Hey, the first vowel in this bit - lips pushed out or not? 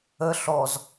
no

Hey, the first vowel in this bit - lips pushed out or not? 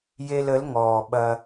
no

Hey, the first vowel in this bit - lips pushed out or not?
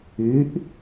no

